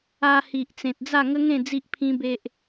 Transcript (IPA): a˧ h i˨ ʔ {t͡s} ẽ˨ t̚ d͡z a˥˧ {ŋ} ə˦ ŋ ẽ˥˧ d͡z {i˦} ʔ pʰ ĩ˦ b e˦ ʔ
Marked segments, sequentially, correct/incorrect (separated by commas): correct, correct, correct